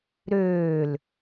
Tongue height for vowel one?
mid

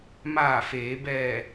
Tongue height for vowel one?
low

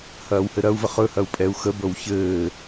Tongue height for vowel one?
low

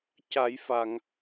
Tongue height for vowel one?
low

